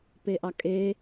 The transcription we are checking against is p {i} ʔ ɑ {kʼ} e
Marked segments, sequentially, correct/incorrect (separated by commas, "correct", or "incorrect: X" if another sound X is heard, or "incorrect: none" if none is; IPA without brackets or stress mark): incorrect: e, correct